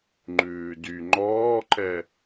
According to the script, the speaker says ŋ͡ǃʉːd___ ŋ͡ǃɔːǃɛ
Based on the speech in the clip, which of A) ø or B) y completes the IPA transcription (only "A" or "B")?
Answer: B